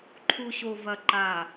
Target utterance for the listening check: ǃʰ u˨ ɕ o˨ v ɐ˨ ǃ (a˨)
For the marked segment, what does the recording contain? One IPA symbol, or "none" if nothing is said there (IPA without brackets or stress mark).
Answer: a˨